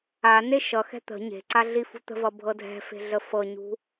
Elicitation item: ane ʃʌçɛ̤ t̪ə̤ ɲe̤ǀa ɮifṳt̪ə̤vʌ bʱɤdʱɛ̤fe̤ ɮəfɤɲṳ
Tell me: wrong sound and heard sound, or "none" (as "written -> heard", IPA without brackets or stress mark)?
ç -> x